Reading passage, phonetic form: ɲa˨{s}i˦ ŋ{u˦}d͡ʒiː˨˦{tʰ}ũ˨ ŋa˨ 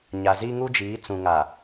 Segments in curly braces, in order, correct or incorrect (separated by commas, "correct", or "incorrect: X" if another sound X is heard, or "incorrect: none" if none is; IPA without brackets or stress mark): incorrect: z, correct, incorrect: t͡s